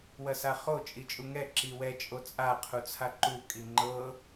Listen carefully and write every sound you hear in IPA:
wɐsaχo t͡ʃʼit͡ʃʼuŋɛ ǁiwɛ t͡ʃʼot͡sʼa qʰut͡sʰaǃu kʼiŋ͡ǃɤ

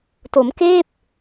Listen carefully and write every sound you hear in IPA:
to˩˦mkeː˥˩p̚

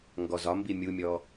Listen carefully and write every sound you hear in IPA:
ŋɡɔzɒmbi mʲumʲɔ

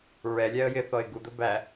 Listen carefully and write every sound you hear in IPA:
ɹɛlʲæə̯ jɪθɔɪ̯ ɡud̪ə bæ

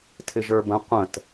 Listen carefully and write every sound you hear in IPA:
tʰɪʒə˞bə̃ qʷə̃t

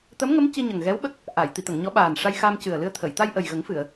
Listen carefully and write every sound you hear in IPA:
t̪ə˧˥mŋə˧˥m ci˧ɲə˨˩ŋɣɛ˧˥w ɓə˦˥k̚ | ʔa˨˩˨j t̪i˨˩˨t̪ə˨˩˨ŋɲɔ˧˥ɓaː˨˩n ʂa˧jxa˧m cɨ˨˩ə̯lɨ˧ə̯ t̪ʰə˨˩˨j t̪a˧jʔə˨˩jɣə˨˩˦ŋ fɨ˨˩˨ə̯

